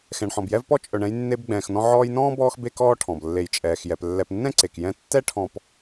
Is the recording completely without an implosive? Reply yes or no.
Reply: yes